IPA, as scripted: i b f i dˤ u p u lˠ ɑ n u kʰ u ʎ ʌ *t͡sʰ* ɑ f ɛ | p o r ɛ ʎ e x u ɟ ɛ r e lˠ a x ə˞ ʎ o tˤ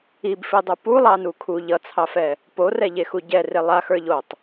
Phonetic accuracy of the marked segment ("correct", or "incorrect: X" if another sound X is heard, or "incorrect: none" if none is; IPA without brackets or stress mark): correct